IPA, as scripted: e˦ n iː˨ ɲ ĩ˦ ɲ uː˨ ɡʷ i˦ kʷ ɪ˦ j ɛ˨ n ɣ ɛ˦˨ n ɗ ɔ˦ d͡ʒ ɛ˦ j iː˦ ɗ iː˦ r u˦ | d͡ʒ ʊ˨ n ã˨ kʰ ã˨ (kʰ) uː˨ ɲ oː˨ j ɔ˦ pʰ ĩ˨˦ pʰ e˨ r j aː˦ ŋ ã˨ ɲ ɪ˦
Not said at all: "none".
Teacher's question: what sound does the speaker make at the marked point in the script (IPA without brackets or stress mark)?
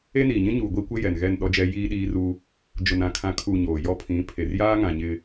kʰ